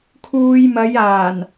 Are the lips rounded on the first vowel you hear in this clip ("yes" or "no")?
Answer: yes